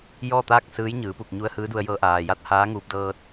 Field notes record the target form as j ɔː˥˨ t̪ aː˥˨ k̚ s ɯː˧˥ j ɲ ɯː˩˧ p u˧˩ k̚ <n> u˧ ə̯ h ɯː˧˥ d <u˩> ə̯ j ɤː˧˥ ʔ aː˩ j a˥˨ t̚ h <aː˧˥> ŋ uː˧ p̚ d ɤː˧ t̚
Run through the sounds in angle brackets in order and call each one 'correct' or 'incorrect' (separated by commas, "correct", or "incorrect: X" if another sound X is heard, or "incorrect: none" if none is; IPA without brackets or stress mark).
incorrect: ɲ, incorrect: u˧, correct